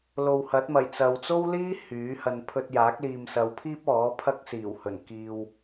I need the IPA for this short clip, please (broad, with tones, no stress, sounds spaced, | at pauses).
l o˨ w h ɐ˨˥ t̚ m ɐ˨˩ j t͡s ɐ˨ w t͡s o˥ w l iː˥ h yː˨˥ h ɐ˧ n pʰ ɵ˧ t̚ j aː˨˥ k̚ l iː˨ m s ɐ˨˧ w pʰ iː˥ p̚ ɔː˨˥ pʰ ɐ˥ k̚ s iː˨˩ w h ɵ˨˩ n k iː˧ w